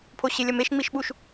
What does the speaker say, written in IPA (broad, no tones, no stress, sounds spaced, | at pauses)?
pʰ o ɕ e lʲ ɐ m e ʃ ŋ͡m i ʃ ɓ u ʃ